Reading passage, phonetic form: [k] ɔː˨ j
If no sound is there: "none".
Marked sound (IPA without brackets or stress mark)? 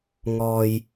ŋ